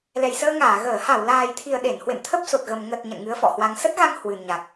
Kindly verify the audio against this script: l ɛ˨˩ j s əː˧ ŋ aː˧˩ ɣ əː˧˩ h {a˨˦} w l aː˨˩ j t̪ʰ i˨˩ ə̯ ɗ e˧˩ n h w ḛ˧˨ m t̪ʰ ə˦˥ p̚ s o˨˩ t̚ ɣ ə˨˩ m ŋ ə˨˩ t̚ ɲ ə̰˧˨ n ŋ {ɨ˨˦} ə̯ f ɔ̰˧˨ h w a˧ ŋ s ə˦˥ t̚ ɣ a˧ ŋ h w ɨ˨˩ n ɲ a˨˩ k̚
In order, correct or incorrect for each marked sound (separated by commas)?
incorrect, correct